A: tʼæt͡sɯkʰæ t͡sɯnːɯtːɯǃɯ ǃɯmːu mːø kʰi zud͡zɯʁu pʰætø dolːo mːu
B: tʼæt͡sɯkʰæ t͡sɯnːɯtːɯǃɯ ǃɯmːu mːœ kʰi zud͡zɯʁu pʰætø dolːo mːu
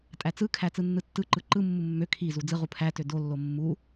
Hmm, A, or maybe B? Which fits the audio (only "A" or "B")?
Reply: A